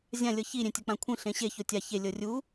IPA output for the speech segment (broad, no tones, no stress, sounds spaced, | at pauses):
zʲ ã lʲ ɤ ç i ɾʲ ẽ tʲ ɤ k͡p ã kʷʰ ĩ ɬ ẽ ɕ e ç o tʲ a ç e lʲ ɤ rʲ u